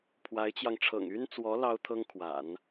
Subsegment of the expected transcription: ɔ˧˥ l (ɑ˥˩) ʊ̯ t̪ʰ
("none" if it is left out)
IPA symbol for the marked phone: ɑ˥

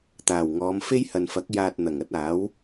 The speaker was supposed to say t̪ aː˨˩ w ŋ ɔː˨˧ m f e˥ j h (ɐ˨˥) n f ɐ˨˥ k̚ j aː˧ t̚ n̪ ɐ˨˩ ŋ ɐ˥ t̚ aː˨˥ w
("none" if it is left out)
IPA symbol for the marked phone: ɐ˨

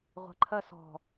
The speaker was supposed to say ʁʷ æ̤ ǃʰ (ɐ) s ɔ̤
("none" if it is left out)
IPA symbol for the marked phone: ɐ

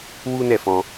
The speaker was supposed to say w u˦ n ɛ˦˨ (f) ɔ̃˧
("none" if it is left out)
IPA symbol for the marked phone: f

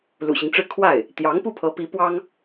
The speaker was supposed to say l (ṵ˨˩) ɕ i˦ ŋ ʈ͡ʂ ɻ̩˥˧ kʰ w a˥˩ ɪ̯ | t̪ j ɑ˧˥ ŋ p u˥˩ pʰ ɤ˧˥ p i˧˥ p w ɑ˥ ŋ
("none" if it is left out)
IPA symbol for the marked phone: ṵ˨˩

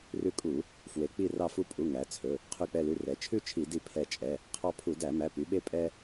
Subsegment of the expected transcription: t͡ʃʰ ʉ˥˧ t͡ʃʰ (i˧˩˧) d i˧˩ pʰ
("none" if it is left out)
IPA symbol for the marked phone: i˧˩˧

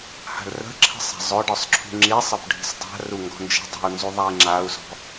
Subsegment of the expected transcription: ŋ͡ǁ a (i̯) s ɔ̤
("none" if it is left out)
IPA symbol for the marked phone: u̯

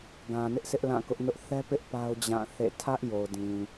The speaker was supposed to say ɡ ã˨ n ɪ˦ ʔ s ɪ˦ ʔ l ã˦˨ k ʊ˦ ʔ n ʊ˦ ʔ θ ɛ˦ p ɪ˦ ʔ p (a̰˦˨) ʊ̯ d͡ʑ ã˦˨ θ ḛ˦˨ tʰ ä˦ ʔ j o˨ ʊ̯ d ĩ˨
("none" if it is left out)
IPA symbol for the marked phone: a˦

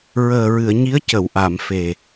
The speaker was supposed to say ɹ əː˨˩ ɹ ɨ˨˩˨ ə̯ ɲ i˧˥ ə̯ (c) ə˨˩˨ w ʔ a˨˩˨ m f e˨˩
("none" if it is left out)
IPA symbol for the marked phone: c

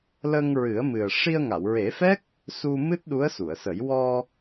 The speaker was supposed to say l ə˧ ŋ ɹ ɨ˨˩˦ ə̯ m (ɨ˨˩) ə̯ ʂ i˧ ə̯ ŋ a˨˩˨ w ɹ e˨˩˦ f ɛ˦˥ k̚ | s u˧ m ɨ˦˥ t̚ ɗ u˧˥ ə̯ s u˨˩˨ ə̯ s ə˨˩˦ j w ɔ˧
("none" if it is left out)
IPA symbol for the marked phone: ɨ˨˩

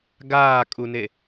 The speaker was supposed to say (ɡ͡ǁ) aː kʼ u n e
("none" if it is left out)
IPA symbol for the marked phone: ɡ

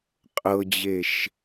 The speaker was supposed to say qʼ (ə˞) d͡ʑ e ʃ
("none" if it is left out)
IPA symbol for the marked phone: ɤ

